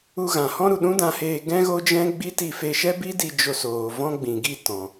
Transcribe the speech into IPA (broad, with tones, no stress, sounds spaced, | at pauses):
u˧ ɣ ã˨ h ɔ̃˦ ɾ u˨ ɗ ũ˦ d ã˧ h eː˧ ɡ ɛ̃˦ ɣ o˦ d͡ʒ ɛ̃˦ ɡ͡b i˦ t i˦˨ f e˧ ʃ ɛ˦ b i˦ d i˧ d͡ʒ o˧ s oː˨ v ɔ̃˦ ɡ͡b ĩ˨ ɡ i˦˨ t ɔ̃˨